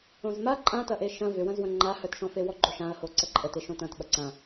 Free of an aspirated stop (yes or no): yes